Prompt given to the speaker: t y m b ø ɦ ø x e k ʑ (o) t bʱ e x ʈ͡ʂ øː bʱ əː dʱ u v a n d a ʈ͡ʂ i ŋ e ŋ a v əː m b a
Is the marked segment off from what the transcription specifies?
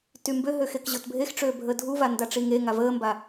no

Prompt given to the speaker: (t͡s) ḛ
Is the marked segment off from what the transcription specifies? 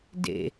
yes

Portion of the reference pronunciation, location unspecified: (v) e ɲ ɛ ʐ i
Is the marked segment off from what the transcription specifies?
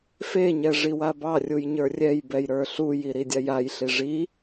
yes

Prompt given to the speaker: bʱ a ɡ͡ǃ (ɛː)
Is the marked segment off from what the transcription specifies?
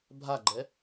yes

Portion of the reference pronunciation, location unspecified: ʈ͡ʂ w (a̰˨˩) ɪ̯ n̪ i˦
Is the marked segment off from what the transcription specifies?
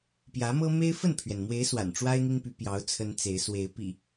yes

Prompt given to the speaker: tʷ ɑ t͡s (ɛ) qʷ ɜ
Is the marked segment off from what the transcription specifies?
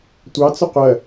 yes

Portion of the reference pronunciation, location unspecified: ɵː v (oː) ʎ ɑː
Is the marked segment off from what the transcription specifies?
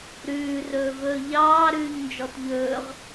yes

